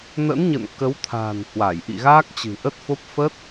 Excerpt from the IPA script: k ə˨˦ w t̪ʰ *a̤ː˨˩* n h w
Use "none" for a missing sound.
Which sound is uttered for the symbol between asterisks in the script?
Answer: a̤ː˨˩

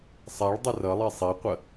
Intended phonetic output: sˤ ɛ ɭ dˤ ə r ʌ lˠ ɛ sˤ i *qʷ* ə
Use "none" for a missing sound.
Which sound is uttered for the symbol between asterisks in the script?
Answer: qʷ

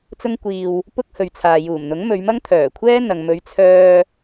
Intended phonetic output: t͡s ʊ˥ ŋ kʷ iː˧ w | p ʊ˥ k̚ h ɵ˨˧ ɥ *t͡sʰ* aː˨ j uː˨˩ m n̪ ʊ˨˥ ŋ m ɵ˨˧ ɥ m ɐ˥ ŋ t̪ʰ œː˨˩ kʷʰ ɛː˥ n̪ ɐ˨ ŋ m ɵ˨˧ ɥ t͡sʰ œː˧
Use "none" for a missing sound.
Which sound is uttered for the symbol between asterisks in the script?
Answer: t͡sʰ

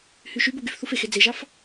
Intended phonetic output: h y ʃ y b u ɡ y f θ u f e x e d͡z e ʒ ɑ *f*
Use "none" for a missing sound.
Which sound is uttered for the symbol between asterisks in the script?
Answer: f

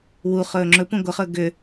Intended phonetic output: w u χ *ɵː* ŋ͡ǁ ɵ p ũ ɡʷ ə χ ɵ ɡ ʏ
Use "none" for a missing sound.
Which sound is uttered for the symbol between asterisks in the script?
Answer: ɵː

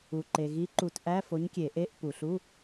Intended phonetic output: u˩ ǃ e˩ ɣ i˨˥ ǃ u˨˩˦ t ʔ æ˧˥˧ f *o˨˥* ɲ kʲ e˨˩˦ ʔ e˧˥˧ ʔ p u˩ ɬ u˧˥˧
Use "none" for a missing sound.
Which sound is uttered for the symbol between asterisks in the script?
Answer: o˨˥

